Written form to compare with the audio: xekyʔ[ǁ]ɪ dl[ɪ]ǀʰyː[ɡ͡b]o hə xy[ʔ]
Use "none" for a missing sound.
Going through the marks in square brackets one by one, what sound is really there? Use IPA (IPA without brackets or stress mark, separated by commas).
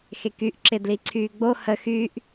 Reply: ǁ, i, ɡ͡b, ʔ